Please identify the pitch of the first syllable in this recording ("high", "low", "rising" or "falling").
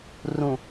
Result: low